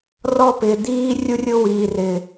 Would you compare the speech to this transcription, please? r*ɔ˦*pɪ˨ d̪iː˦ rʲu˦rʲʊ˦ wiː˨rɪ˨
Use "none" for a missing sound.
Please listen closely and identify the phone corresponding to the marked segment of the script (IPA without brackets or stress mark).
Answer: ɔ˦